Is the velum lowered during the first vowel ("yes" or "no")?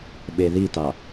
no